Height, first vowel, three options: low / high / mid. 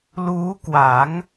high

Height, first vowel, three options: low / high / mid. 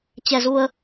mid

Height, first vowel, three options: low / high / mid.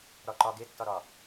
low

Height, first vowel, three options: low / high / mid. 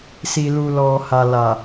high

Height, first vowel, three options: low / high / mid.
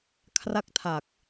low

